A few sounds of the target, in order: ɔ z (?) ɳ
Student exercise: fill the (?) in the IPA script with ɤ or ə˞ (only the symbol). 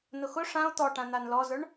ə˞